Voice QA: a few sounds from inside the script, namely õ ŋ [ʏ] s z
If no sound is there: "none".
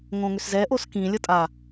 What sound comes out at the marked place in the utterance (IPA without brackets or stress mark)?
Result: ʏ